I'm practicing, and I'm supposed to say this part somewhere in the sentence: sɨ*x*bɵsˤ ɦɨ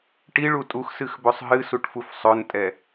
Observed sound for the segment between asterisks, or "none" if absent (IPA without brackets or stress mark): x